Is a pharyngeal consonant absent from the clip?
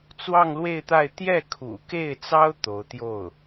yes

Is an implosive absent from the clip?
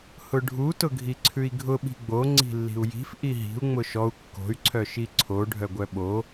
no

